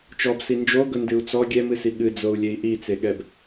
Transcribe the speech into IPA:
t͡ʃ ɔ b s i n d͡ʒ o ɡ ɵ n d ɨ u̯ t͡s ɔ ɡʲ ɛ m ɨ s i ɠ ɨ d͡z o u̯ lʲ e i̯ ʔ i t͡s e ɠ ɛ b

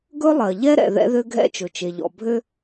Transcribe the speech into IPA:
ɡ ɵ˥ lˠ ɜ˩ ʎ ɛ˥ ɾ ɛ̰˩ ð ɛ̰˥ ð ø˥ ɡʱ ɛ̰˥ t͡ʃ ɵ˩ t͡ʃ e˩ ʎ ɔ̰˩ bʱ ø˥

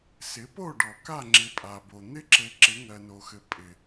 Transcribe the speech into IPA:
s ɪ˨˦ p o˦˨ ɖ ɔ˨ k a˦˨ ŋ͡ǁ ɪ˨ pʼ a˨ b o˨ n̪ ɪ˦ ǁ ɘ˨ ǁ ɪ˨˦ ŋ ɜ˨ n o˨ x ɘ˨ pʼ ɪ˨

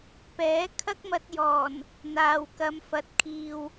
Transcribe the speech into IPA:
p ɛː˨˥ kʰ ɐ˥ k̚ m ɐ˧ t̚ j ɔː˨˩ n | n̪ aː˨ w k ɐ˨˧ m f ɐ˨ t̚ kʰ iː˨ w

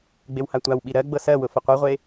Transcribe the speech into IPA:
ɡ͡b e w h a tʷ a w ɓ i ɾ ɜ ɡ͡b ɤ s ɜ w ʊ f ʊ qʷ ɤ ʁʷ e

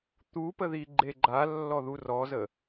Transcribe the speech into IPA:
t̪ u p ə ð i ɡ͡ǃ e ɡ͡ǃ a lː ɔ ð u r ɔ z ə

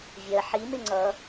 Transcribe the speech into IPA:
vʲ ɜ ħ i m ɪ ŋ͡ǀ ʌ

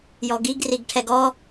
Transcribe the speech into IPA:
j ɔ ɡ i ɡ r i ɡ ʈʰ ɛ ɡ ɔ

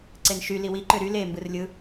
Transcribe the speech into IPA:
ǀ e n ʃ y l i w i ǃ ø ɾ y l e m b ɯ r lʲ ɯ

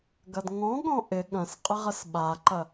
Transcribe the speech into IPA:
ɡ ɐ d ŋ ɔ̃ ɠ ɔ̃ ʔ ɪ ɠ ɐ̃ s qʼ ɪ ʁ ə s ɓ a ǃ ɐ

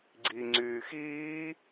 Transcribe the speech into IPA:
ɡ͡ǀ i ŋ͡ǀ yː x iː

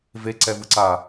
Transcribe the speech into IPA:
v e ǀ ɛ v ɯ ǀ a

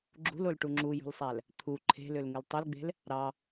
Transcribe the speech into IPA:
ɡ͡ǁ ṳ l o l ʈ u ŋ͡ǁ u j ṳ l sˤ æ l | t̪ʰ u ǃʰ e̤ l ø l ŋ ɯ l tˤ ø l ɡ͡b e̤ l | ɾ ɑ

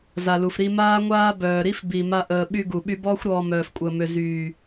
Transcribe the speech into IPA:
z a˨ l u˨ f ɾ i˧ m aː˦ ŋʷ aː˦ b œː˨ ɾ i˦ f b i˨ m a˦ ʔ əː˧ ɓ y˦ ɡ u˨ ɓ y˦ b ɔː˦ xʷ ɾ ɔː˧ m œː˨ f kʷʼ əː˨ m ø˨ z yː˨

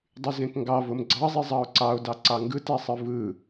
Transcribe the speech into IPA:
dˤ y z ẽ k ŋ ɡ ɑ v o m ɡ͡ǀ ɑ zˤ i zˤ ɑ o̯ ǀ ɑ o̯ d ɑ ǀ ɑ ŋ ɡ ɯ t æ sˤ ɯ v ɯ

